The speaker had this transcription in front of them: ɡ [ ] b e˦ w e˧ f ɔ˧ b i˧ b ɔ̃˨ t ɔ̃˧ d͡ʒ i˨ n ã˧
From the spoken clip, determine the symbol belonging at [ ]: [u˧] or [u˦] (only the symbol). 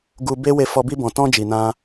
u˧